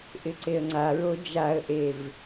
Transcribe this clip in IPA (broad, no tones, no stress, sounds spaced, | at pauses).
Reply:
ʔ ɪ ǀ e ə̯ ŋ͡ǀ a ɹ o d͡ʒ a ə̯ ʔ e v